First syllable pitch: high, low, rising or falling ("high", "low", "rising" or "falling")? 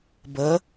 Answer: rising